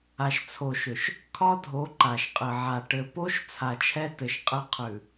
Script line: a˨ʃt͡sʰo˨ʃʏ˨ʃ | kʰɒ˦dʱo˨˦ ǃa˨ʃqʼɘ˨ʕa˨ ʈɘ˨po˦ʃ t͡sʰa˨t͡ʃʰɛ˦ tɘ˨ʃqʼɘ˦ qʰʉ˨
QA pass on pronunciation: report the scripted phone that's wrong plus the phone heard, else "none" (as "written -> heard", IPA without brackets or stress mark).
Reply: none